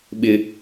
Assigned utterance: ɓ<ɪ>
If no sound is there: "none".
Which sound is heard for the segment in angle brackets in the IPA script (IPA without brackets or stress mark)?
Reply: ɪ